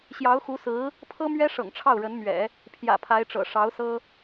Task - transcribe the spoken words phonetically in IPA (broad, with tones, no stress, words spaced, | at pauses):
ɕjɑ˧˥ʊ̯xu˧˥sɹ̩˧˥ | pʰɤ˥mɥɛ˥ ʂɤ̰˨˩ŋʈ͡ʂʰɑ˥˩ʊ̯ɻə˧˥nmɥɛ̰˨˩˦ | pʰjä̰˨˩pʰa˧˥ɪ̯ʈ͡ʂɤ̰˨˩ ʂɑ˧˥ʊ̯sɤ˥